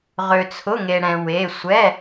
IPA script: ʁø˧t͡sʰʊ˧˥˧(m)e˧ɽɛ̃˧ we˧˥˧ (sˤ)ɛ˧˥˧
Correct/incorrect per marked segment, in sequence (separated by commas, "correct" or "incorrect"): incorrect, incorrect